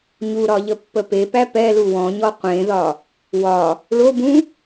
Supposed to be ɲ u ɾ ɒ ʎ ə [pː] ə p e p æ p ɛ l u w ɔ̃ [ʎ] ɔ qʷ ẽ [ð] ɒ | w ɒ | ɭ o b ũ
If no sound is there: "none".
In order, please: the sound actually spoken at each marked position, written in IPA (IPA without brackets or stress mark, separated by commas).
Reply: pː, ɲ, ð